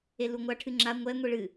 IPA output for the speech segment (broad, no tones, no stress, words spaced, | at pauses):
eluŋʷa ʈʰɨŋ͡ǁa ŋʷɛ ŋʷiɭɨ